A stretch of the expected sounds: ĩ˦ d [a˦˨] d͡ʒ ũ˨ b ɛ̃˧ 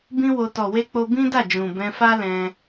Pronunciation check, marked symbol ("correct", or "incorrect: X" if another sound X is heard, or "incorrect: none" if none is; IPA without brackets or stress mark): correct